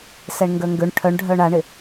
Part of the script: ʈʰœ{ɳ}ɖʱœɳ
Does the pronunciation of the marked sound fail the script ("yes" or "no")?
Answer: no